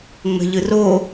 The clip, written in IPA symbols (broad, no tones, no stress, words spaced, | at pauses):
ŋ͡mə̤ʎɯro